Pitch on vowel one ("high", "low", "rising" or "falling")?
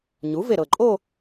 rising